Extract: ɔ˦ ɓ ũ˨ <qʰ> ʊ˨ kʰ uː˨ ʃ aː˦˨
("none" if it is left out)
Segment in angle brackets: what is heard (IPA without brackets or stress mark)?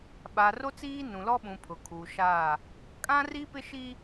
pʰ